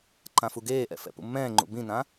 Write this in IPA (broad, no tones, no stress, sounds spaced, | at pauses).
ǃ ã f u ɡ eː ʔ ɛ̰ f ɛ̰ p ṵ mː ɛ̃ː ŋ͡ǃ ṵ b ĩ n ã